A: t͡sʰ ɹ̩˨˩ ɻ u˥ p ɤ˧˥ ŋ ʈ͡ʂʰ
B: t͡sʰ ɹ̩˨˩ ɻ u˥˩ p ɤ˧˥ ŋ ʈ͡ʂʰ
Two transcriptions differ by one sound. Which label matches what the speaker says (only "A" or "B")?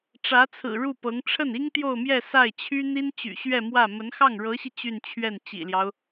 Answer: B